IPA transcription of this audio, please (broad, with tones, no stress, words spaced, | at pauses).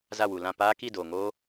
za˦˨wu˨lã˦˨ paː˦ ki˦˨doː˨ ŋoː˦